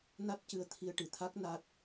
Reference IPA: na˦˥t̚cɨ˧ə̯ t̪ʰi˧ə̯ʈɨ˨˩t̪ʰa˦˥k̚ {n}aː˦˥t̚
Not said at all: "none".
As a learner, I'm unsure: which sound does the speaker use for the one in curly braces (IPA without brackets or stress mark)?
n